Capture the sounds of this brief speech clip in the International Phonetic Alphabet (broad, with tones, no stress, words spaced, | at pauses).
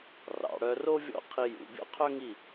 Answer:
rɑ̰˩˧ɽœ˧ro˥ vʲɔ̰˥˧qʰi˧jṵ˩˧ bʲɔ̰˥qʰœ˥ŋi˥˧